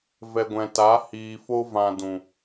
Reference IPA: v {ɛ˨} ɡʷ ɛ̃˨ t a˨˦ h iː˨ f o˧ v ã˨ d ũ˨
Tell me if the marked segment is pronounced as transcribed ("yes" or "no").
yes